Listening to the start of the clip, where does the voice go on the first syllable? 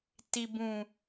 low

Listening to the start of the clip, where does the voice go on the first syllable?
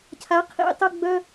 rising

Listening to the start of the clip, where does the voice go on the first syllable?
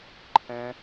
high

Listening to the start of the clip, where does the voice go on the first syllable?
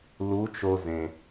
rising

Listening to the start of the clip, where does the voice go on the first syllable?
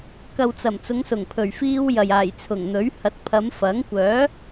low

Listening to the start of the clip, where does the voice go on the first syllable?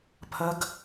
rising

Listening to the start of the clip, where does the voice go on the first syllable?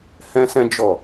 high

